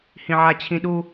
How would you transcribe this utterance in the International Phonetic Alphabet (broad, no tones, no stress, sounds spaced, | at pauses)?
h ĩ ʕ a t͡ɕʰ ĩ ɗ u